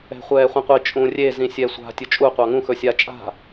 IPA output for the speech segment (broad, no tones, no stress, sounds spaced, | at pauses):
ɛ̤ χʷ ɛː χʷ ĩ qʷ i t͡ʃʼ ũ rʲ e z ĩ sʲ ɛ sʷ a̤ tʲ ɵ t͡ʃʼ u qʷ ɑ ŋ ũ x ɵ sʲ a t͡ʃʼ a̤